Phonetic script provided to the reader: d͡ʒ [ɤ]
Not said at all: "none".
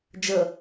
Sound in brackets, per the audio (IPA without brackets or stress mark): ɤ